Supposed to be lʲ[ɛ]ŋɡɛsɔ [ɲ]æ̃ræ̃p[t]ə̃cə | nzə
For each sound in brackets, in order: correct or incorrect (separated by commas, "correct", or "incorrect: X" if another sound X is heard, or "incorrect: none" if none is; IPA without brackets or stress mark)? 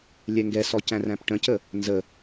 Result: correct, incorrect: c, incorrect: ʈ